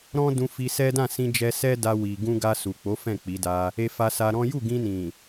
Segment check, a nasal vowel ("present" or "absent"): present